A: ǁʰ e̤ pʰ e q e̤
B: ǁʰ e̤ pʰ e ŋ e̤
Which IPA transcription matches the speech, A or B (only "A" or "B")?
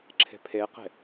A